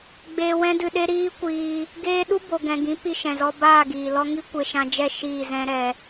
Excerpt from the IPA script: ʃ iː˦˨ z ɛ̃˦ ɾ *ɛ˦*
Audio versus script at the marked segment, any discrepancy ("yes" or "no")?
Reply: yes